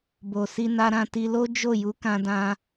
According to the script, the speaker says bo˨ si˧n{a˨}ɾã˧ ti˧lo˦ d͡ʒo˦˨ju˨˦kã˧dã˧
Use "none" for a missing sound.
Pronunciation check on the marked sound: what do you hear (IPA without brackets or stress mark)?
a˧